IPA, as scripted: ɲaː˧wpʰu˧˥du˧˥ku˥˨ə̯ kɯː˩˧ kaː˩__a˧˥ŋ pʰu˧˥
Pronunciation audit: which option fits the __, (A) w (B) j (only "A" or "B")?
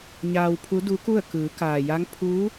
B